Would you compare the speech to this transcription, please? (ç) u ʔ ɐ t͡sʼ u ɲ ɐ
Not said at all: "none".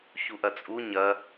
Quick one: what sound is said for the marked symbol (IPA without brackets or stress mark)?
ç